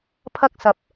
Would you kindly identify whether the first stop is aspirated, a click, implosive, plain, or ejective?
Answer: aspirated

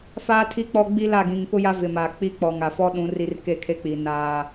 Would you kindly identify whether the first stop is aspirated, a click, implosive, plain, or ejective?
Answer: aspirated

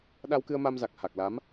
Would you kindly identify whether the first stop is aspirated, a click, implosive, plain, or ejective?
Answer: implosive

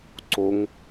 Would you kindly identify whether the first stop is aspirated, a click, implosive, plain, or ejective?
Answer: click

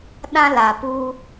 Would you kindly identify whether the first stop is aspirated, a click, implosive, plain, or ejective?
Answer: implosive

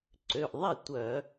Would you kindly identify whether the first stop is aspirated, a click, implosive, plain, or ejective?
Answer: click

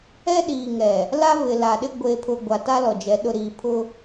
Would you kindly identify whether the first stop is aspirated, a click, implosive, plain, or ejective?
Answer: implosive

